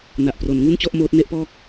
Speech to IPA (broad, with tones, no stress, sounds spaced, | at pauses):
n a˨˩ ʔ p r o˩˦ n ŋ u˥˩ n t͡ɕ ɔ˥˩ ʔ m oː˦˥ t̚ n e˥˩ ʔ p ɔː˥˩ k̚